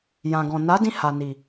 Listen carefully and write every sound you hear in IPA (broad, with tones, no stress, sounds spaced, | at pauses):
j ã˨ ɡ ɔ̃˨ n a˨˦ d ĩ˧ h a˨ n i˨